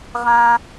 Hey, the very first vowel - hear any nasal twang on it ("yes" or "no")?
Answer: yes